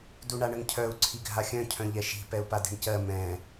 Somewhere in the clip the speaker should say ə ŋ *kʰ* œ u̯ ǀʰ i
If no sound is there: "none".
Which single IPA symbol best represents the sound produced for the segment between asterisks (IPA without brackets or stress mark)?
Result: cʰ